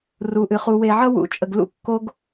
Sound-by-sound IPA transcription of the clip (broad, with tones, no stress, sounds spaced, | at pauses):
r u˨ ʔ ɨ˨ χ u˨ w e˨ ʕ ʌ˦ w ṵ˨˦ t͡ʃʼ ə˨ ɡ l ṵ˦ kː o˦ ɡ